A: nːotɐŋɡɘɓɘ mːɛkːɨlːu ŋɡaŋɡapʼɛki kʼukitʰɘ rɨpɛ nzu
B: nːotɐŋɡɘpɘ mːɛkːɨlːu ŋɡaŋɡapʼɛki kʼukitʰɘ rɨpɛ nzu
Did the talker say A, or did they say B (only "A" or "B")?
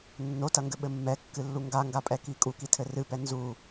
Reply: A